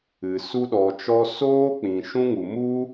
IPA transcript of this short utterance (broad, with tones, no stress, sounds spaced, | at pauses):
ɨ˨ s u˧ ɗ ɔ˨ t͡ʃ ɔ˧ s oː˦ k͡p ĩ˨ ʃ ũ˦ ŋ u˨ m u˦